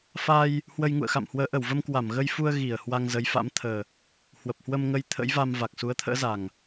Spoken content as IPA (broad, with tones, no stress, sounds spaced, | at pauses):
f a˧ j | h w ə˧ j ŋ ṵ˧˨ ə̯ x a̰˧˨ m h w əː˨˦ ʔ ə˧˩ w v ə˧ m k w a˧˩ m ɣ ə˧ j f u˧ ə̯ ɣ i˧˩ ə̯ h w a˧ ŋ z ə˨˦ j f a̰˧˥ m t̪ʰ əː˨˩ | h w ə˨˩ p̚ h w ə˧ m ŋ ə˧ j t̪ʰ ə̰˧˥ j v a˧ m v a˨˩ k̚ s u˨˦ ə̯ t̪ʰ ə̰ː˧˥ z a˨˩ ŋ